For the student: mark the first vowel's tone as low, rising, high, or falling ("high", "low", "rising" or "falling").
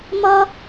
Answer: high